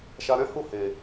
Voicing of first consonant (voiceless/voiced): voiceless